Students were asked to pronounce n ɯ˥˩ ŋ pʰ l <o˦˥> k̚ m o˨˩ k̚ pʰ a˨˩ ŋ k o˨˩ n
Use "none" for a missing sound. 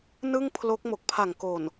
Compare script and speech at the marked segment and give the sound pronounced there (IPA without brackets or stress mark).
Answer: o˦˥